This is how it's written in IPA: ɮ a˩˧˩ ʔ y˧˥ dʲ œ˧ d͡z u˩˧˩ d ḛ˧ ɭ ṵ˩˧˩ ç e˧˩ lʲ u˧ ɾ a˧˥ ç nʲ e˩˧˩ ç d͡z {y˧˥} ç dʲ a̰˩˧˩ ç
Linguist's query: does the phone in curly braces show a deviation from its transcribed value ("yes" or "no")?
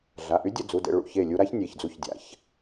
yes